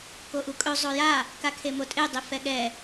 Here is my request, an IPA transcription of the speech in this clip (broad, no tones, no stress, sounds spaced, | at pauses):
k o ʔ u kʼ ɵ zˤ o j a | k a kʰ e m o tʼ e dˤ i f ɛ ɠ ɛ